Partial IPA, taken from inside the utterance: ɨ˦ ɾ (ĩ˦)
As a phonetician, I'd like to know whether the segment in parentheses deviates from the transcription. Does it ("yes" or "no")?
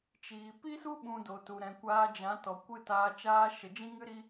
yes